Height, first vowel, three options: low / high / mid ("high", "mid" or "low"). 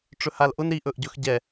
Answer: mid